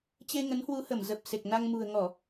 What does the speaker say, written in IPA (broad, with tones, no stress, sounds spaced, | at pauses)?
t͡ɕ e˧ ŋ ə˨˦ n h w u˨˦ h ə˧˩ m z ə˨˩ p̚ s e˨˩ k̚ n a˧ ŋ m ṳ˨˩ ə̯ ŋ ɔ˧˩˨